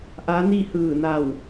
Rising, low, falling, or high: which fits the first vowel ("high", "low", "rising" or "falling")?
rising